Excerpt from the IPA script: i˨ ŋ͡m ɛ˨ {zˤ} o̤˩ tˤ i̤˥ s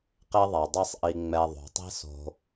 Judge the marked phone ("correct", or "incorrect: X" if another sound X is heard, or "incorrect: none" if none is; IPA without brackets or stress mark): incorrect: ðˤ